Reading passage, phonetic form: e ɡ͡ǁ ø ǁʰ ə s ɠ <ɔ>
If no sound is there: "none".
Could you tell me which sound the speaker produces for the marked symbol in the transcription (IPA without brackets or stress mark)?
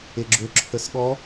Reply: ɔ